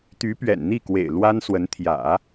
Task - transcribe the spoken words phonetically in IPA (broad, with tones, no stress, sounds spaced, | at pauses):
t̪ y˧˥ p ɥ ɛ̰˨˩ n n̪ i˥˩ k w ḛ˨˩ ɪ̯ l w a˥ n s w ə˧˥ n t̪ʰ j ä̰˨˩˦